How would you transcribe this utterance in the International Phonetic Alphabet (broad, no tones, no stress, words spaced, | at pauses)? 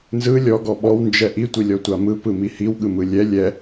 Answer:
nzɯ lʲɔɡɔ ɓɔwnd͡ʒɛ ʔitʷilʲɔtʷa mɯpɯmi hiwɠɯmɯ lʲɛ lʲɛ